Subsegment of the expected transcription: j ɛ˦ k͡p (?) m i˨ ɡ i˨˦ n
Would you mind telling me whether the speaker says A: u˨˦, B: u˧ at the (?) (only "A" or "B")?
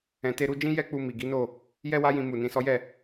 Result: B